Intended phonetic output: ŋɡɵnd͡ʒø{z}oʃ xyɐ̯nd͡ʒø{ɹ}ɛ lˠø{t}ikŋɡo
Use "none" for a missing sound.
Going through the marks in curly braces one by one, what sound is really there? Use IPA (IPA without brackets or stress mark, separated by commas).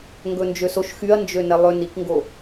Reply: s, n, n